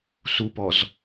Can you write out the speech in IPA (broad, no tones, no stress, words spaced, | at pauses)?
supɔz